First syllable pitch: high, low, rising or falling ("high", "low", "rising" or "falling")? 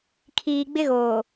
low